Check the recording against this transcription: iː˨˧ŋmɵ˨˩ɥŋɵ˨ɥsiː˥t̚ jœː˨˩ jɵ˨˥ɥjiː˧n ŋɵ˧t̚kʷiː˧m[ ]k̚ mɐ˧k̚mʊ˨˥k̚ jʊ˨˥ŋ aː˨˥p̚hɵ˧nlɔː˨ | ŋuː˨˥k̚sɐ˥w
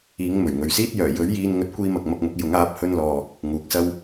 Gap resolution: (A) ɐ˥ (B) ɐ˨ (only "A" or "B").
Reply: B